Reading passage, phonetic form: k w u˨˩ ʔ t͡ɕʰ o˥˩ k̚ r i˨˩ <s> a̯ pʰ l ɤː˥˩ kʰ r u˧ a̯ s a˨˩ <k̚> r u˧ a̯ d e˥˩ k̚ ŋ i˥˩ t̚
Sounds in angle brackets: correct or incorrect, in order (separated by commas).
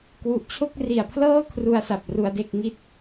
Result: incorrect, incorrect